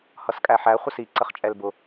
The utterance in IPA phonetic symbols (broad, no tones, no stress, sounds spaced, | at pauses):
h ʌ s kʼ æ ħ æ χʷ ə s i ǀ ə χ t͡ʃʼ ɛ l b ʊ